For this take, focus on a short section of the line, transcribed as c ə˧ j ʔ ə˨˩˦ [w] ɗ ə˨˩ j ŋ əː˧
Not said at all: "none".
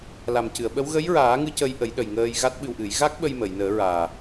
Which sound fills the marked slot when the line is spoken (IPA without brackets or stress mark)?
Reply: j